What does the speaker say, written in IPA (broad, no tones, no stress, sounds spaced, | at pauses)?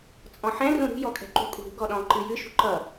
t͡sʼ ɔ̃ ħ ɛ̃ r ũ ɾ ṳ j ɔ kʼ ɛ̤ ǃ ṳ kʼ ṳ ɾ ṳ ɡ ɔ ɗ ɔ̃ ǃ ɨ j ɨ ʃ ṳ ǃ ʌ